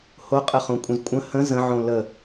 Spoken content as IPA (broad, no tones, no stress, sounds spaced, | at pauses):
h o qʼ ə χ õ kʷʼ ə̃ z kʷʼ ə̃ h ə̃ z ə̃ ʕ õ l ə